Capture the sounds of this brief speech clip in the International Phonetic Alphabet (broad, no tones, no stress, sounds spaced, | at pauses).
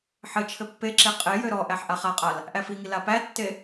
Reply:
ħ ɘ t͡ʃʰ ɘ pː e ǁ e qʼ e j ø ɾ ɔ ʔ æ ħ ʔ a χ a qʼ a l | ʔ æ f i ŋ i l a p æ tː e